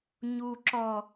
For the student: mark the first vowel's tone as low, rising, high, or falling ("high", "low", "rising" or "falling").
low